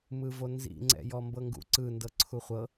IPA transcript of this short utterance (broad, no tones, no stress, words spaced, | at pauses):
mɯvonzḭ ŋ͡ǀɛ̰jɔmbɤŋɡṵ ǀɯ ndɤǀʰuχʷɤ